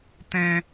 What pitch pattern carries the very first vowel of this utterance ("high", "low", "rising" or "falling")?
high